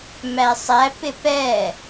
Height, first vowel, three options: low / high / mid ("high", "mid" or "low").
low